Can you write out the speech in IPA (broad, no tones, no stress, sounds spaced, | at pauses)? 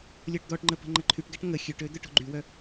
lʲ ɔ ʈ d̪ ɔ ʈ ŋ͡ǃ ə p ə̤ ŋ͡ǃ ə ǃʰ y ʈ ɡ ɛ ʈ ŋ ə xʲ ø ʈ ø d̪ œ ʈ o̤ ɡ͡ǃ y w œ